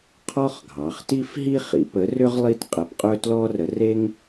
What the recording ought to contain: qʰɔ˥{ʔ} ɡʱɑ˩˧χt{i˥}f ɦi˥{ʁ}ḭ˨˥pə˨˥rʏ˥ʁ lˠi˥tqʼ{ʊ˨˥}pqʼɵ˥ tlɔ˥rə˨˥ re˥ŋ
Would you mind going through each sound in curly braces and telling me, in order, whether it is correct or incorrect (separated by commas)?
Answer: incorrect, correct, incorrect, incorrect